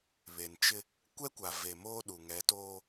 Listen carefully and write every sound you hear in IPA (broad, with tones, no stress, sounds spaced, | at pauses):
β e˨ n t͡ʃ ɪ˦ | kʷ ɛ˦ kʷ a˨ v e˨ m oː˦ ɗ u˨ ŋ ɛ˨˦ t oː˦